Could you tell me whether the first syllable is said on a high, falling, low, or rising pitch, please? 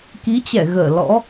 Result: rising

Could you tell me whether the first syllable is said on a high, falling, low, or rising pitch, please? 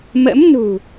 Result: rising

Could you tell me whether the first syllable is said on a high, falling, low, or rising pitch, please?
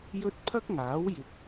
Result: high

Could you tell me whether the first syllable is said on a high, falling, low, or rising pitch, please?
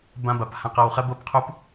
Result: high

